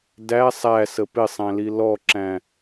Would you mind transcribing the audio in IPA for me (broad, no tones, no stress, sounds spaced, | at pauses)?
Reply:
d æ sˤ æ s ə p ɪ sˤ æ̃ l i l ɔ ǁ æ̃